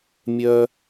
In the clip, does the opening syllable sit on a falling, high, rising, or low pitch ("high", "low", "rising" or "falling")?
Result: high